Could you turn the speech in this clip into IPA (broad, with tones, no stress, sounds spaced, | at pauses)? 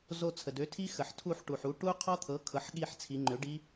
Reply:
z o˦˨ t͡sʰ ə˩ d ø˩˥ tʰ i˦˥ x ə˩ ħ tʰ u˦˨ ħ ʈ u˩ ħ u˩˥ ʈ u˦˥ qʰ ɔ˦˥ t̪ʰ ɤ˩˥ kʰ ɤ˩˥ ħ ɠ i˦˨ ħ t͡sʰ i˩˧ ŋ͡ǃ ø˩˥ ɖ i˦˥